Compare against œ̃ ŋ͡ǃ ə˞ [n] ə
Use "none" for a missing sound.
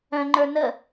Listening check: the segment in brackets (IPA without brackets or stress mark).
n